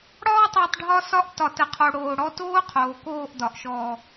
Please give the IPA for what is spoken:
ɽ ɒː˦ tˤ o˧ tˤ ɖʱ ɒ˧ s ɒ˧ ʔ t ɒ˨ t ə˨ qʰ o˨ ɽ oː˨ ɽ ɔ˧ t oː˦ qʰ oː˨ k oː˦˨ ʔ d ɒ˨ ʔ ʃ ɔː˨

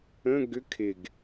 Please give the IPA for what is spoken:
ə̃ ɡ ʏ kʰ ɪ ɡ

